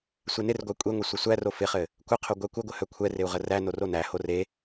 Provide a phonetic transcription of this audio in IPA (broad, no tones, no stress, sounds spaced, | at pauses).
sʷ e n ɪ r ɡʷ æ kʷʼ e ŋʷ œ sʷ ɘ sʷ æ r o f ɪ χ ɘ | kʷ ə qʰ o ɡʷ æ kʷ ɘ ɡʷ ɘ h œ kʷʰ ɛ r ɪ u̯ ʁ ə r æ n o r o n æ h o r e